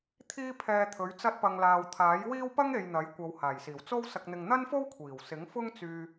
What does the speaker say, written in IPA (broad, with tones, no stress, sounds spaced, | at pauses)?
t̪ʰ iː˥ pʰ ɛː˧ t̪ʰ ɵ˨˥ ɥ t͡s ɐ˧ t̚ p ɐ˨ ŋ l aː˨ w t̪ʰ aː˨˥ j w iː˥ w p ɐ˥ ŋ e˨ j n̪ ɐ˨˥ j kʷ ɐ˨˧ w h aː˨˩ j s iː˨˩ w t͡s o˧ w s ɐ˨ k̚ n̪ ɪ˨ ŋ n̪ ɐ˥ n f o˥ w kʷʰ iː˨˩ w s ɪ˨˥ ŋ f ʊ˥ ŋ t͡s yː˧